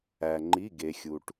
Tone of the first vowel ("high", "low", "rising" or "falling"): low